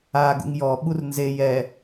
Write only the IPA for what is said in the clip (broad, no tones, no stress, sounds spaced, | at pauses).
a ɡ ṵ ŋ j ɔ ɓ u r n z e j ɛ